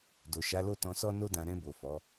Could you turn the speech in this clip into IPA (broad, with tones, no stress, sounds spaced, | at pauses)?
d o˨ ʃ a˨˦ l o˦˨ t ɔ̃˧ s ɔ˦ n o˦ d ã˧ ɾ ɛ̃˧ b o˨ f ɔ˨˦